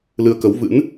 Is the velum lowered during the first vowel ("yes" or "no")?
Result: no